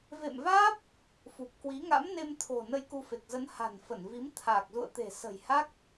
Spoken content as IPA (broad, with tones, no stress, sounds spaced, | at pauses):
v ḛ˧˨ m v aː˦˥ p̚ | f u˨˩ p̚ k w i˨˦ ŋ a̰˧˥ m n e˧ m t̪ʰ o̤˨˩ n ə˧ j k u˧ f e˨˩ k̚ z ə˨˦ n h a̤˨˩ n f ə˧˩ n v i˨˦ m t̪ʰ aː˨˩ k̚ z ṵ˧˨ ə̯ t̪ e̤˨˩ s ə̤˨˩ j h a˦˥ k̚